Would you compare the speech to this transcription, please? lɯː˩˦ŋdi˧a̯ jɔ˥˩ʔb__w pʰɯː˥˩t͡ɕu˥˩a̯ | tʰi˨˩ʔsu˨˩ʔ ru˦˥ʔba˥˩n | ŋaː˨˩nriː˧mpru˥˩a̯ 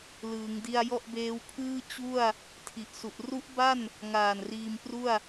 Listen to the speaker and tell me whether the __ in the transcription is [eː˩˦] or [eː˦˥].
eː˦˥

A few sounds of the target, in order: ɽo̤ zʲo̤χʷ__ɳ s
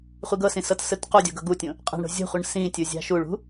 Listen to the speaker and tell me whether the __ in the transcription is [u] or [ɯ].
ɯ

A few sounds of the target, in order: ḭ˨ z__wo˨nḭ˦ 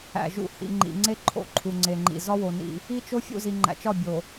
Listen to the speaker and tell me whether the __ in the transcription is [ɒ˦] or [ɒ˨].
ɒ˦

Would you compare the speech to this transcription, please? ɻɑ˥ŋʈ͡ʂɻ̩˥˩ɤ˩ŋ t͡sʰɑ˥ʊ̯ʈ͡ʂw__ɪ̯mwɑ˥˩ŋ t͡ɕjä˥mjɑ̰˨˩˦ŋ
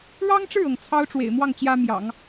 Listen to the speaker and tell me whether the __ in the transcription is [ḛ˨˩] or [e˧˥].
ḛ˨˩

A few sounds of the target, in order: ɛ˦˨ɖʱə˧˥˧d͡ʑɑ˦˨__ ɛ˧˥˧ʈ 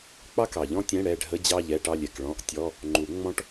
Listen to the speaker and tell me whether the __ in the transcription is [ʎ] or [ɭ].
ʎ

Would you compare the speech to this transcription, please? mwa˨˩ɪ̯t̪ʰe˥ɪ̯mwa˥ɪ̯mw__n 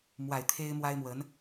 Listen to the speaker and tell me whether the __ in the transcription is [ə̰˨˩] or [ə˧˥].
ə˧˥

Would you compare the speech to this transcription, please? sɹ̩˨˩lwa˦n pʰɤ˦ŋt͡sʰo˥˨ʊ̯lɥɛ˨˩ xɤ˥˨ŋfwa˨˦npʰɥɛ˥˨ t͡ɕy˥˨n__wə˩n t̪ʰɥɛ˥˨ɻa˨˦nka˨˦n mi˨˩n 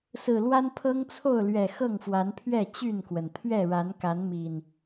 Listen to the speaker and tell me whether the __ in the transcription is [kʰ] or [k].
k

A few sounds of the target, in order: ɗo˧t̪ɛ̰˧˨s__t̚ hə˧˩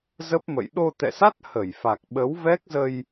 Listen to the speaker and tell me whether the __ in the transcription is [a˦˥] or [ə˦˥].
a˦˥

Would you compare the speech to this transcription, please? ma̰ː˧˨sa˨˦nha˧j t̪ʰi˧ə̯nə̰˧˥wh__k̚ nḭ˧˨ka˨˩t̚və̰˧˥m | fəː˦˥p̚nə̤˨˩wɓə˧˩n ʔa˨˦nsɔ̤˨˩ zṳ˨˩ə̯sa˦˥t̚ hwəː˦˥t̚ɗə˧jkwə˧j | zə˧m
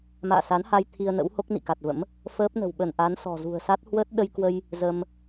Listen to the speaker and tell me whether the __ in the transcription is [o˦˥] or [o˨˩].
o˦˥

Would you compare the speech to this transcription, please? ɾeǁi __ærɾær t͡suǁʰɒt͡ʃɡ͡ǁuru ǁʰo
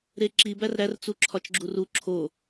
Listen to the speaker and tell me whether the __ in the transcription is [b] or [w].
b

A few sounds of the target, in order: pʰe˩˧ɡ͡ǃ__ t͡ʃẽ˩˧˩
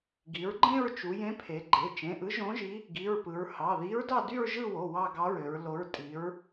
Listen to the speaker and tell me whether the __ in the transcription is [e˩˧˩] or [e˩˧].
e˩˧˩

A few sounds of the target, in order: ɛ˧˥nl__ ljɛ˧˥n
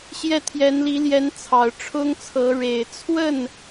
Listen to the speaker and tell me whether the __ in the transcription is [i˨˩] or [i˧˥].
i˧˥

